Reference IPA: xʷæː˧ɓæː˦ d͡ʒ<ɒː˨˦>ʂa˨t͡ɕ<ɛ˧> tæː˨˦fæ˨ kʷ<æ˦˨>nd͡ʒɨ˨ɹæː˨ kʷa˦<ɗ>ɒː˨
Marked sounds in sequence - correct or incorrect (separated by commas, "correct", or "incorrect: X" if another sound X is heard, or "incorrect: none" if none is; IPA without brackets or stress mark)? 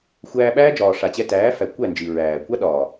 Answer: incorrect: ɒː˨, correct, correct, correct